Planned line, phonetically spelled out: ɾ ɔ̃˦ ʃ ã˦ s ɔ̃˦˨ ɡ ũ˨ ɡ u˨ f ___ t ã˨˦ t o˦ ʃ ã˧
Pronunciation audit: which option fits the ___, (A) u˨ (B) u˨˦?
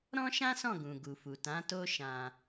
A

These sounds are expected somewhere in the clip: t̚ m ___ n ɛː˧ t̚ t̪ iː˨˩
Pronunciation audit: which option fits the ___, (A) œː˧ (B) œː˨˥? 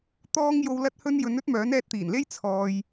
B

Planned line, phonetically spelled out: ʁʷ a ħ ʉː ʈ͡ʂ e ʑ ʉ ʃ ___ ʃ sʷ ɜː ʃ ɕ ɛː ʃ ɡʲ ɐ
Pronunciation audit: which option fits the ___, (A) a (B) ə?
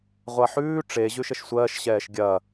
B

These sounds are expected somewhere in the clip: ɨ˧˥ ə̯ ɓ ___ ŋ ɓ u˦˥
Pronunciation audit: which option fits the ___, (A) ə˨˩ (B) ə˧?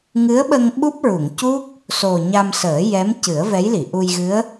B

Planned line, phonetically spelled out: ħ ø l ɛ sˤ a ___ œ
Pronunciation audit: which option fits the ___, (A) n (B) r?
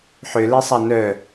A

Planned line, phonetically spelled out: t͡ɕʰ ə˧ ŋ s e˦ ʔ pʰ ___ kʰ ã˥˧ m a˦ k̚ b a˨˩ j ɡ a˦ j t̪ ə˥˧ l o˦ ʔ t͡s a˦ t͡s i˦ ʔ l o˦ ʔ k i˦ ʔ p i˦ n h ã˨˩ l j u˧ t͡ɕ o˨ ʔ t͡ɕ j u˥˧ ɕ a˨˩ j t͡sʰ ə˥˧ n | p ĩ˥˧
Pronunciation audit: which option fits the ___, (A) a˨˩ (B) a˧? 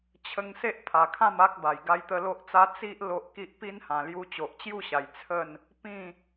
A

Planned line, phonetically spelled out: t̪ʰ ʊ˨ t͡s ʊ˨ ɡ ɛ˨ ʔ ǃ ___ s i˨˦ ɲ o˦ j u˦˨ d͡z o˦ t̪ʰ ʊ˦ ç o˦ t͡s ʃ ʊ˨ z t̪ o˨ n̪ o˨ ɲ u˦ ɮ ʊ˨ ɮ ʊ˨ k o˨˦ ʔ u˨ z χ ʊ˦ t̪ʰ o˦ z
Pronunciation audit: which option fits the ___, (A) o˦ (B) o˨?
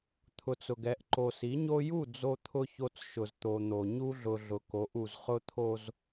B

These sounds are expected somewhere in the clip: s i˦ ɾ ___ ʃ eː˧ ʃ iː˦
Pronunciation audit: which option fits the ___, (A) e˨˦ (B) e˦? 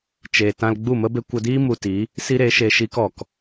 A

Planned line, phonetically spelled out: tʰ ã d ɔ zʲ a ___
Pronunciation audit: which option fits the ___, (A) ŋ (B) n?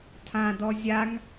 A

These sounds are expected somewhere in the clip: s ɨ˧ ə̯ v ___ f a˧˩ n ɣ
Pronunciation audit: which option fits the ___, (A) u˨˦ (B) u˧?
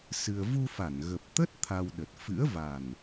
B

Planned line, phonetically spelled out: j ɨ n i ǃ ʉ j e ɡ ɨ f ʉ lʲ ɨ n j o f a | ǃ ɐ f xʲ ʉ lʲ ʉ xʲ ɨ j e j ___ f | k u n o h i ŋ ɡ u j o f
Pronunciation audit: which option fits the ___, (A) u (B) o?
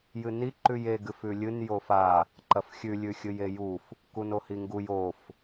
A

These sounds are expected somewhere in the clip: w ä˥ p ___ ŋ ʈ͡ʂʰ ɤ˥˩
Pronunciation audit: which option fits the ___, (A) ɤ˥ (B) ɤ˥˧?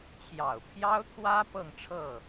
B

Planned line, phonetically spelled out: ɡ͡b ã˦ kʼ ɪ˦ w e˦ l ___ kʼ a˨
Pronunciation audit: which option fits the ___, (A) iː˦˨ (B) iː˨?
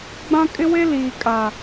B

